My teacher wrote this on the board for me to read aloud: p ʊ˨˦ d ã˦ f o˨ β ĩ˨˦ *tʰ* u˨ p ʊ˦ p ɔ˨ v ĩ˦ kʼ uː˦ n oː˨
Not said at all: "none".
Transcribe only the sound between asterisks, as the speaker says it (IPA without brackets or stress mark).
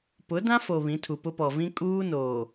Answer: tʰ